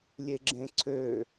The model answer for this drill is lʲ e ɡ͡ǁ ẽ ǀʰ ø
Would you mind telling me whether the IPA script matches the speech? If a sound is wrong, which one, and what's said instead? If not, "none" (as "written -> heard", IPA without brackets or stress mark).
none